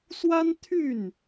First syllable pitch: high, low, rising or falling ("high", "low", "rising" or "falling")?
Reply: high